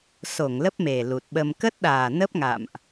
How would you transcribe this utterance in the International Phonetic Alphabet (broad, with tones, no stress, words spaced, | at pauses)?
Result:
so˧˩ŋ lə˦˥p̚me˨˩ lu˨˩t̚ɓə˧m kə˦˥t̚ɗaː˨˩ nə˦˥p̚ŋa̰ː˧˨mʔ